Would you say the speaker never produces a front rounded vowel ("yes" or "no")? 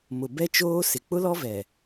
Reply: yes